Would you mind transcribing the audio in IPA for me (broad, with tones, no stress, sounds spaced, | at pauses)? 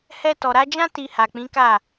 h ɛ˧ t ɔ˨ ɾ a˨˦ d͡ʒ ã˦ t i˧ h a˨ k͡p ĩ˨˦ k a˦˨